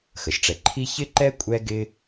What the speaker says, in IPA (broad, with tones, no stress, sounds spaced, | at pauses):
x ə˩ ʃ ʈ͡ʂ ɛ˨ ǃʰ i˥ ç ɪ˥ ǃ ɛ˥ kʷʼ ɛ˦ ɡ ɪ˦